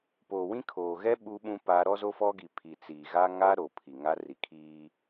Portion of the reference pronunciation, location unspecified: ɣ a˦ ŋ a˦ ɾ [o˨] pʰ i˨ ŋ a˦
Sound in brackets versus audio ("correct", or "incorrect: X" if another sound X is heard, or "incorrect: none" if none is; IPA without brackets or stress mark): correct